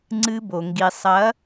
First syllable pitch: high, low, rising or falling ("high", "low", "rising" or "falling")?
high